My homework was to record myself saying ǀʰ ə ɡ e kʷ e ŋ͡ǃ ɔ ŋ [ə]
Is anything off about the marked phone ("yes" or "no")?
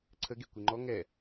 yes